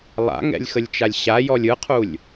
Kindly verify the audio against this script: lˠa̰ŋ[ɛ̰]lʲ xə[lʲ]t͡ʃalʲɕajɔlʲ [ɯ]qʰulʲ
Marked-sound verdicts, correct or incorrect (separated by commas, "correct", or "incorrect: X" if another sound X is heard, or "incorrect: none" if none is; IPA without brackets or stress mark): correct, correct, correct